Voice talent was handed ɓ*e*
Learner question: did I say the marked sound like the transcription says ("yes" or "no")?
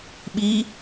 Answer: no